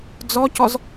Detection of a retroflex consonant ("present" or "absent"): absent